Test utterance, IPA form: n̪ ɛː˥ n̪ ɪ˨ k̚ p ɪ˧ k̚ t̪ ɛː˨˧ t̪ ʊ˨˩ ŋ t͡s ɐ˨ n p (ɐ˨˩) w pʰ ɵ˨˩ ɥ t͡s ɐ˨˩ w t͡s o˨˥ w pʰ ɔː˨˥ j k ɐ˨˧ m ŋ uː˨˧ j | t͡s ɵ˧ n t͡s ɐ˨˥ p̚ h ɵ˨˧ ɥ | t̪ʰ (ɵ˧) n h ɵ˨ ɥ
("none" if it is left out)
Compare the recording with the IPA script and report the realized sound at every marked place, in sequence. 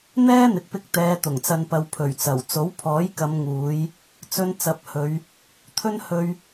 ɐ˨, ɵ˧

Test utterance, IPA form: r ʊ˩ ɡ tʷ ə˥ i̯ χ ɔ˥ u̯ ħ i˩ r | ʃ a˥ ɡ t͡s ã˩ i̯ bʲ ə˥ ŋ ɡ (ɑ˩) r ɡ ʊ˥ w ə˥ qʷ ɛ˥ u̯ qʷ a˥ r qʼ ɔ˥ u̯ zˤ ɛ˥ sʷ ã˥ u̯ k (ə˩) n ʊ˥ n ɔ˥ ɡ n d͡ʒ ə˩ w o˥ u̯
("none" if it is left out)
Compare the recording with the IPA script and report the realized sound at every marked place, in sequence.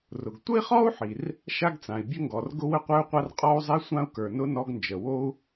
ɔ˩, ə˞˩

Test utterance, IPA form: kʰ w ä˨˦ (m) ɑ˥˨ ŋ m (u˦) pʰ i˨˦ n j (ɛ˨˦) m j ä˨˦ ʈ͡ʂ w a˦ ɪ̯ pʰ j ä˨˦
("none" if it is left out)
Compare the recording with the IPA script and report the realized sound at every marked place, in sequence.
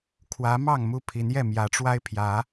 m, u˥˨, ɛ˥˨

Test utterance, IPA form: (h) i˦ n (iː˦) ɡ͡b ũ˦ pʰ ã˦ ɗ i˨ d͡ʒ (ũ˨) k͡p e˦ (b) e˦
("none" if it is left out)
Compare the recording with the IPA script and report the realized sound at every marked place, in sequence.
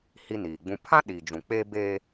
h, iː˨, ũ˨, b

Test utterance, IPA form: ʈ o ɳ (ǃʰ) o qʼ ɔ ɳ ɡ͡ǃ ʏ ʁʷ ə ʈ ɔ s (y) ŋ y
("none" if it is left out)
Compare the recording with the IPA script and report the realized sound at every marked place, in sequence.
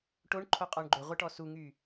ǃʰ, u

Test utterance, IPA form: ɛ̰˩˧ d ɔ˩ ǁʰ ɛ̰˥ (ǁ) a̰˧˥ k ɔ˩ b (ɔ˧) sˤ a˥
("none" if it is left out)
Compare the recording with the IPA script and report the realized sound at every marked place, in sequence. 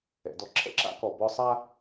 ǁ, ɔ˧

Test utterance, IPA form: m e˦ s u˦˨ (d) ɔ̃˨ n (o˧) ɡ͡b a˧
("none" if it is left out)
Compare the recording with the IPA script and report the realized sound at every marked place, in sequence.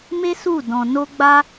d, o˧

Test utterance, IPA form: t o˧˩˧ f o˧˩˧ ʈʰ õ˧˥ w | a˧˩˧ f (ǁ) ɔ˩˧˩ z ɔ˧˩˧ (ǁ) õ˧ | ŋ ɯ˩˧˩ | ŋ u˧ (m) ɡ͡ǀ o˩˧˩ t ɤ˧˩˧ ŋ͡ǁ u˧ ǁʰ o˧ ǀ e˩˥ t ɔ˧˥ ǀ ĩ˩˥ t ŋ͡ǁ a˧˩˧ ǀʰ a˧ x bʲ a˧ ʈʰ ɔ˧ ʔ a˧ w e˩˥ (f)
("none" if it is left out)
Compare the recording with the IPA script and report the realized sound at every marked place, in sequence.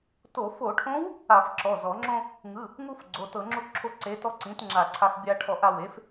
ǁ, ŋ͡ǁ, f, f

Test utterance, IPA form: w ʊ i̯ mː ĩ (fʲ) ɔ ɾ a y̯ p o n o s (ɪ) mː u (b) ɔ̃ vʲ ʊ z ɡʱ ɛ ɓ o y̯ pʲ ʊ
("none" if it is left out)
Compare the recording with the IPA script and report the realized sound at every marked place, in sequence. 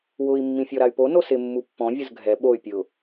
fʲ, ɪ, pː

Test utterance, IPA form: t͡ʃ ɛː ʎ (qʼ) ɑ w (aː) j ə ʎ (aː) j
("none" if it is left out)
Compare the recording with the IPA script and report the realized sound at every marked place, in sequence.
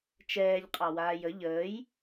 qʼ, aː, əː

